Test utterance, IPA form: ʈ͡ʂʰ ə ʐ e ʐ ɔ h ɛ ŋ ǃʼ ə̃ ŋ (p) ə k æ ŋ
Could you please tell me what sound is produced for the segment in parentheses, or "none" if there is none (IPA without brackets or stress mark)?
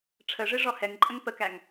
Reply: p